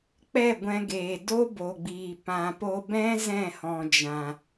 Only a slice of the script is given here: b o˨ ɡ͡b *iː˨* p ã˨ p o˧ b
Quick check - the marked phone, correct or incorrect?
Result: correct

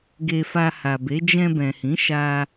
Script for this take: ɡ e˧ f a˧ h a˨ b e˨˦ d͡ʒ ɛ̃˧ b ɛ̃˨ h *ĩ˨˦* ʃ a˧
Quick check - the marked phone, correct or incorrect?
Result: correct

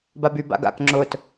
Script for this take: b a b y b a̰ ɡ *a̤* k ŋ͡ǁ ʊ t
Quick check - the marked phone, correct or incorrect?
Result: incorrect: a̰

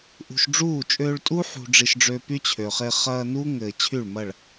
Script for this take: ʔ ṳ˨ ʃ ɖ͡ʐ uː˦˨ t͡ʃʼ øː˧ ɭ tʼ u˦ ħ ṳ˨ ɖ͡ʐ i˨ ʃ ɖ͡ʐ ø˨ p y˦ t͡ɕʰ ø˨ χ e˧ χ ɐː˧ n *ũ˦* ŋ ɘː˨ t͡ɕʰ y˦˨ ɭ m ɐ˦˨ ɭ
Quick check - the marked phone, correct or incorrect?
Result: incorrect: u˦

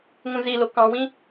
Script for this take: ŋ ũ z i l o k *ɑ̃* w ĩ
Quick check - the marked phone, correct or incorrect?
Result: correct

